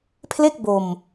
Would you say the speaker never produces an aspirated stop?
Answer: no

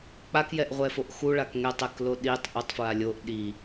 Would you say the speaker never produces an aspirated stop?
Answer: yes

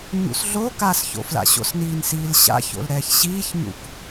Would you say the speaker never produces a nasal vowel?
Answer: yes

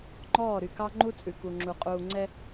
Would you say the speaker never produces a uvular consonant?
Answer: no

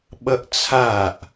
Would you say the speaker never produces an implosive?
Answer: no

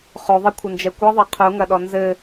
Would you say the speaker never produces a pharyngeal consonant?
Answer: yes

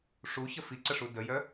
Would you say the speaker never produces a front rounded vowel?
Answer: no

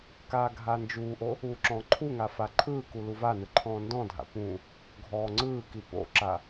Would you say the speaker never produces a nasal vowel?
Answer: no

